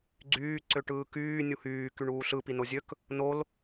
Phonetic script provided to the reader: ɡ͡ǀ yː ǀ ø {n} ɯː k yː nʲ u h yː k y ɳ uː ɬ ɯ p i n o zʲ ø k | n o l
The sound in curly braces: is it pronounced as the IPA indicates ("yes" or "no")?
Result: no